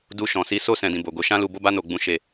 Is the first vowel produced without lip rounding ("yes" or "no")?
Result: no